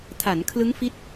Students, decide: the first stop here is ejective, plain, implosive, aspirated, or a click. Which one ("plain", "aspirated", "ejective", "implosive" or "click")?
aspirated